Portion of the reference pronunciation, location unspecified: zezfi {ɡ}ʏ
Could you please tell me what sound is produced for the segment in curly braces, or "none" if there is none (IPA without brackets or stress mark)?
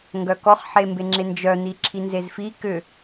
k